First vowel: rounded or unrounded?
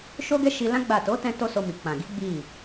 rounded